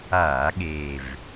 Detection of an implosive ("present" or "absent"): present